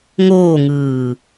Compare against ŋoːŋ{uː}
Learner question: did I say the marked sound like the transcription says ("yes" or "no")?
no